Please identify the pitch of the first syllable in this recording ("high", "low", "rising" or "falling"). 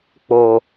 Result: low